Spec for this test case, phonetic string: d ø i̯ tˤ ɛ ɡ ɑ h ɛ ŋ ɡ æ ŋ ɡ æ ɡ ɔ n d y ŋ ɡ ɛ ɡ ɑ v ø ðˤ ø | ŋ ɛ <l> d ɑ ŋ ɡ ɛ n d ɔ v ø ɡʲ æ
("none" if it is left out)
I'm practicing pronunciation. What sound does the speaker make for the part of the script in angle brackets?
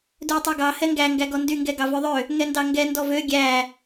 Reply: n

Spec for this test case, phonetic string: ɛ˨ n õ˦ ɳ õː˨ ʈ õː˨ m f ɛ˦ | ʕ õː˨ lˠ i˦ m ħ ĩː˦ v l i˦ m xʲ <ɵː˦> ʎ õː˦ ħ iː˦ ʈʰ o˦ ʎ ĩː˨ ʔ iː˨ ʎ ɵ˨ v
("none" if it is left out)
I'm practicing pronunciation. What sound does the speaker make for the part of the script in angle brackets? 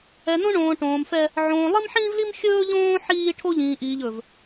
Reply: ɵː˦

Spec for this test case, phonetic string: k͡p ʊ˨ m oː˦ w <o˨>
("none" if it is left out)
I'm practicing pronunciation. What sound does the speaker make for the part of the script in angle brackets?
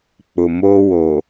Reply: o˨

